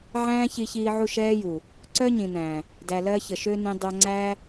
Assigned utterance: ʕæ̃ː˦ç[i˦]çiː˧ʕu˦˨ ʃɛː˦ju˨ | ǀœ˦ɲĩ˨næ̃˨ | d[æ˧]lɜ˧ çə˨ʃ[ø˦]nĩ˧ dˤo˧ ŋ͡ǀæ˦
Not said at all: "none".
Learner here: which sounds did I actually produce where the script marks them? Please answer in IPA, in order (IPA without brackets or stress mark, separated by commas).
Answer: i˧, æ˨, ø˦